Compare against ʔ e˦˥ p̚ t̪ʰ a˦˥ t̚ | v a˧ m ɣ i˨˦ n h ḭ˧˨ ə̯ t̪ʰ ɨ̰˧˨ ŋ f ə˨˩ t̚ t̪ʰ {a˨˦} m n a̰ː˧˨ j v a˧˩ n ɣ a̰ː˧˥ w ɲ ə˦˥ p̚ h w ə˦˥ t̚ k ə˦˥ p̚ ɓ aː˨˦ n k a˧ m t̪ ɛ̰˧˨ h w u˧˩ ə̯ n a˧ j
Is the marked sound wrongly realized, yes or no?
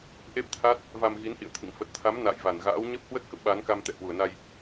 no